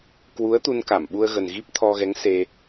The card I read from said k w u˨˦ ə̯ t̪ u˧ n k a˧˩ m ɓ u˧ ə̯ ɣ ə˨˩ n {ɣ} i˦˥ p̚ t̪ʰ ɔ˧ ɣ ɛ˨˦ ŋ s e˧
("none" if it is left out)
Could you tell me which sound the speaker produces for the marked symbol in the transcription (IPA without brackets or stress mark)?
ɣ